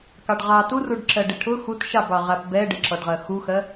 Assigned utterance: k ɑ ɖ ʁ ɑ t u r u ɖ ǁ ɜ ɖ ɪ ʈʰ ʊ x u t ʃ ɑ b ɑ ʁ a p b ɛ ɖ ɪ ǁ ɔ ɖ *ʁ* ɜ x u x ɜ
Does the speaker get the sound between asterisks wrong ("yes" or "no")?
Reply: no